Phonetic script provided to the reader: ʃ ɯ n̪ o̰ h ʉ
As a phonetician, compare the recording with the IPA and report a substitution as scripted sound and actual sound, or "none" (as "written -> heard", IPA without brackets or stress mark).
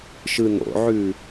h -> ʕ